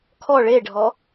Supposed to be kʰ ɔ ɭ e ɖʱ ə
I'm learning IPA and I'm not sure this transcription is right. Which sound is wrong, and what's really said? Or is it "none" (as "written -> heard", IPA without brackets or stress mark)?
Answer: ə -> ɔ